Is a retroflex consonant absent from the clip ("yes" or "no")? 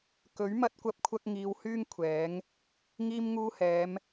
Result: yes